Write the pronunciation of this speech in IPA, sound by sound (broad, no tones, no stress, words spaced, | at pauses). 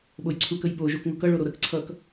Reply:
ɓojǀʰukəj ɓo ʒokŋukʌ ɭoɾoɾək ǀʰʌk